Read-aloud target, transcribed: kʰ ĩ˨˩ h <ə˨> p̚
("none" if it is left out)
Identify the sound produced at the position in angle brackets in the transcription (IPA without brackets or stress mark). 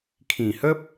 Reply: ə˦